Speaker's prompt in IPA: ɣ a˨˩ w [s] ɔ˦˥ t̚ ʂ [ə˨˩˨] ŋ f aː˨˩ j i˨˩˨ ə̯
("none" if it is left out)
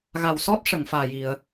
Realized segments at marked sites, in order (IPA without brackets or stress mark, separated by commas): s, ə˨˩˨